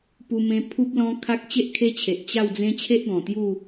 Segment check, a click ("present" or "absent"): absent